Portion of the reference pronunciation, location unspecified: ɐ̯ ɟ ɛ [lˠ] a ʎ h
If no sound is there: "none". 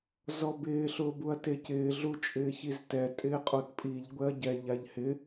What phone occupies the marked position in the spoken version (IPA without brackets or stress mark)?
ʎ